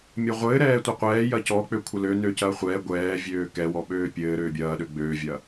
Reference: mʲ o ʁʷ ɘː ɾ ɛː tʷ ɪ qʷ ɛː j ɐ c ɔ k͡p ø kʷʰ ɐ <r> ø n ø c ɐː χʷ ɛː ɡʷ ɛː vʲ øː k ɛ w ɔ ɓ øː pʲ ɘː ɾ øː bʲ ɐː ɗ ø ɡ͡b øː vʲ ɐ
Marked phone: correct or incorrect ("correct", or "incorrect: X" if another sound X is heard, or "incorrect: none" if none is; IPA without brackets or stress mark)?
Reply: incorrect: l